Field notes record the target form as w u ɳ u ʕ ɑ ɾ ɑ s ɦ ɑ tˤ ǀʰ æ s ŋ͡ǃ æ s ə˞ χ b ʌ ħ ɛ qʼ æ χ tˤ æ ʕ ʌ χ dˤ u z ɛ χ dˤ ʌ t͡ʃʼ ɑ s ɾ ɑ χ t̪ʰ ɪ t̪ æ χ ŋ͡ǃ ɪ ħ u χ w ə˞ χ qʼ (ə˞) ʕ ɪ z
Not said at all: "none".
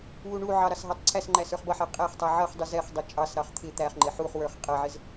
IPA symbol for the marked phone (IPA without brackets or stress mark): ʌ